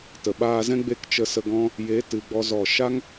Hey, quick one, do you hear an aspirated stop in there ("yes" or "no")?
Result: no